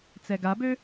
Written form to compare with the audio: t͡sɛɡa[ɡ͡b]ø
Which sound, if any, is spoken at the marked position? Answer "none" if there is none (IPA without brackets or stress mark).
b